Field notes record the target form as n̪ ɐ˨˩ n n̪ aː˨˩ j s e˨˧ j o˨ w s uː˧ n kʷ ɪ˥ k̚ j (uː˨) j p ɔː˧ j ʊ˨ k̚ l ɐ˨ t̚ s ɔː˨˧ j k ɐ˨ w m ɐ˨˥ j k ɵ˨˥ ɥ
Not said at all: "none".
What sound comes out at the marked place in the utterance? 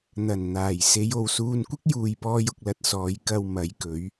uː˨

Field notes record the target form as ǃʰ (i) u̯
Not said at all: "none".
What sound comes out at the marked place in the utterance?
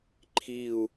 i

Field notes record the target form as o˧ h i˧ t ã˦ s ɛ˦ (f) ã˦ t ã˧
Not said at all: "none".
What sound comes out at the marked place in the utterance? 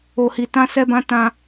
b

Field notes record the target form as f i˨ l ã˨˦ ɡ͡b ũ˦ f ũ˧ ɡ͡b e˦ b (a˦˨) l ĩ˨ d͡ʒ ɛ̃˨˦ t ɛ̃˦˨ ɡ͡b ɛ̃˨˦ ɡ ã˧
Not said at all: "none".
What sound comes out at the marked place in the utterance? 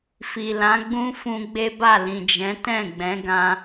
a˦˨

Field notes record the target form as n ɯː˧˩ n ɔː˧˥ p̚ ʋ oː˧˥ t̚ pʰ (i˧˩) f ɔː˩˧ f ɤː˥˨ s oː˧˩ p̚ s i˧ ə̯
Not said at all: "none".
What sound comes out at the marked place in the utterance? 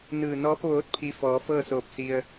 i˧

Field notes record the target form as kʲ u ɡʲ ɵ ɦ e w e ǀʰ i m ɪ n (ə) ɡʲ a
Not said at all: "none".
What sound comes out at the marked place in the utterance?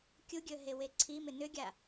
ʏ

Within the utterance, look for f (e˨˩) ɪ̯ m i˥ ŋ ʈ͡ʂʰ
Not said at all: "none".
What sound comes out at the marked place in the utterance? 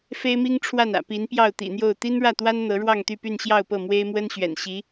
e˥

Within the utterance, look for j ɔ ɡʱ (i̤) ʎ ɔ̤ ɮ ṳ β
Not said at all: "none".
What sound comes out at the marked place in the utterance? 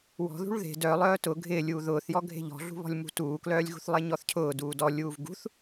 e̤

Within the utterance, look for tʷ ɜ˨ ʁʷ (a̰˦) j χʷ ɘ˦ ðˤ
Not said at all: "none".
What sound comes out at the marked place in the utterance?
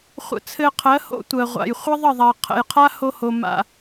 a̰˨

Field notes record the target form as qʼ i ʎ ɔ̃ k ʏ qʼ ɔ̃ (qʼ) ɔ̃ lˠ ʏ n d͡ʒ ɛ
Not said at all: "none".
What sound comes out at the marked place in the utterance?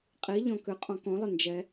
k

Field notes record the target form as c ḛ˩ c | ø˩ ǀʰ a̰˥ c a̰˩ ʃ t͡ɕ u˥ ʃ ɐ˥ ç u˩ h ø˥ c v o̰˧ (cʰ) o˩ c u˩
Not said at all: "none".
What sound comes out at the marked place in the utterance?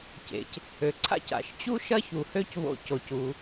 c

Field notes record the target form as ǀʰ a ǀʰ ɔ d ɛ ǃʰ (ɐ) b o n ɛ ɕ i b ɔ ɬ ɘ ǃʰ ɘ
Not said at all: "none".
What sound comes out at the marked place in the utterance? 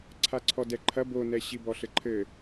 ɐ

